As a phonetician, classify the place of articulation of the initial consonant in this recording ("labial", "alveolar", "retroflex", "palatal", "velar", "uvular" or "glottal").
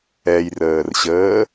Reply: palatal